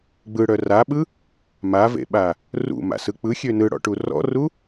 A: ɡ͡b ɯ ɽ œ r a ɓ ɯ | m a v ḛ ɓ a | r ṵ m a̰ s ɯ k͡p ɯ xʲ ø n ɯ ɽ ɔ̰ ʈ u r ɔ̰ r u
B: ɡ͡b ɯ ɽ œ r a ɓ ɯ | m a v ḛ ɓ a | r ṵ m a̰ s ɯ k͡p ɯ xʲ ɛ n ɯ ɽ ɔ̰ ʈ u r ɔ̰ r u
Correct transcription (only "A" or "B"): A